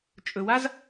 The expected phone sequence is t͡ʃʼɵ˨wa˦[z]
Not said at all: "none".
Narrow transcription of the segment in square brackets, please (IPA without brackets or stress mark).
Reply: z